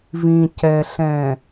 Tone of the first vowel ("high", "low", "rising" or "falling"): low